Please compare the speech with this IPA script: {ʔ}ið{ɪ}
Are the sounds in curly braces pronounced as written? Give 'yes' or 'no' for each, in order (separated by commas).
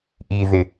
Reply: yes, yes